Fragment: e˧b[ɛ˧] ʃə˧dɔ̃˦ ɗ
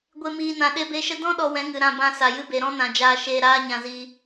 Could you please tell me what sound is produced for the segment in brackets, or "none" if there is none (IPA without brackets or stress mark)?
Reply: e˧